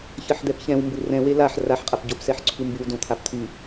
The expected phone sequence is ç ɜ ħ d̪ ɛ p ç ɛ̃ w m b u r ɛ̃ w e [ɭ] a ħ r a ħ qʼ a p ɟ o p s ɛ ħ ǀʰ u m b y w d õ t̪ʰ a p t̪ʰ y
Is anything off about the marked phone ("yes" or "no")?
yes